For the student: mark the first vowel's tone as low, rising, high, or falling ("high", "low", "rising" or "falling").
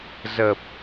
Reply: low